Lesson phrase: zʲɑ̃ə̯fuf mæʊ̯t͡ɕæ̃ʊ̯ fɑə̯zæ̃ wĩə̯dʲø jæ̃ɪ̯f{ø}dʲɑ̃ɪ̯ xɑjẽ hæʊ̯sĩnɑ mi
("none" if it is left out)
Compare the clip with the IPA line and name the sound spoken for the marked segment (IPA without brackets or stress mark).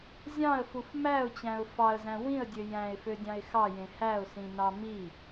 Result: ø